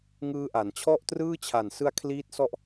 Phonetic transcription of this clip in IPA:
ŋɯː˦˥ʔa˩˦n t͡ɕʰɔ˥˩ʔtrɯː˥˩t͡ɕʰa˨˩n sɯ˧a̯ kʰliː˦˥t̚sɔ˦˥ʔ

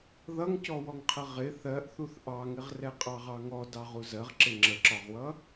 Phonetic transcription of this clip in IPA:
ðʌŋcɔwɔŋqʰə ʁɪ θɜʔθuθ ʔɑŋɪʁrɛqʼɑ ʁɑŋɔ dɑʁuzɜʁǁɪ ŋ͡ǁəǁɒʁwʌ

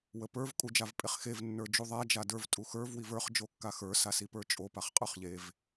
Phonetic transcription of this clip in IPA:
wəpə˞v kʼud͡ʒavpʼeχxev nːə˞d͡ʒuðˤa d͡ʒadə˞v tʼuxə˞v wivə˞χ d͡ʒokːaxə˞ sasipə˞t͡ʃʼo paχqʼə˞χʎev

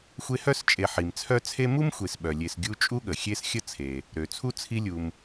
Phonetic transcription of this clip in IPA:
xʷe˦hœ˥st͡ʃʼe˨ħi˩m t͡sʰœ˦t͡sʰe˦mu˥m xʷe˨sɓœ˩lʲe˨s ɡʲu˦t͡ʃʼu˥ɠə˩ xʲe˦sxʲə˦ t͡sʰe˩ | ɾø˩t͡sʰu˥t͡sʰi˦lʲu˨m

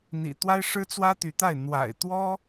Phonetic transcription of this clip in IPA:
n̪ḭ˨˩t̪wa˥ɪ̯ʂɻ̩˥ t͡swä˥t̪y˧˥t̪a˥˩ɪ̯ n̪wa̰˨˩ɪ̯t̪wɔ˥

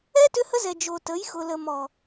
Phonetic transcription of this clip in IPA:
ɛ˦ tʏ˦hə˦zɛ˨ d͡ʒo˨tə˨˦jxʊ˨lə˨ mɔ˨

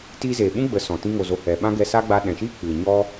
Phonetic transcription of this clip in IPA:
ti˧zeː˨ ɓũ˦ɡ͡bə˨˦sɔ̃˨ tĩ˧ŋo˨zo˨ hɛ˨ɓã˦ɡɛ˧sa˦ ɡ͡ba˧ɗɛ̃˨ʃiː˦ k͡pɨ˨ɲɔ˦

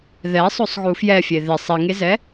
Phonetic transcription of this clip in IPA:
ðɛsˤosˤɣu fjɛfʲe ðɪ sˤiŋezɛ

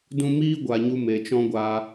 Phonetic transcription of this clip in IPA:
dũ˧miː˦ ɡʷa˨ɲu˧ me˨t͡ʃɔ̃˦ɡʷaː˧

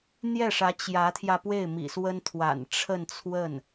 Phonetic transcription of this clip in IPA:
n̪jɛ˥˩ʂä˧˥ t͡ɕjä˧˥t̪ʰjä˧pwe˥˩ɪ̯ mḭ˨˩swə˥nt̪ʰwa̰˨˩n ʈ͡ʂʰə˥˧nt͡sʰwə˥˩n

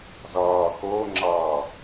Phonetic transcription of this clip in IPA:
zʌː xʊːŋ͡ǁʌː

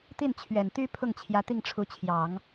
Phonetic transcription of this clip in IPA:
t̪i˥˩nt͡ɕʰɥɛ˨˩nt̪y˥pʰʊ˥˩ŋ t͡ɕʰjä˧˥t̪i˥˩ŋʈ͡ʂʰu˧˥t͡ɕʰjɑ˨˩˦ŋ

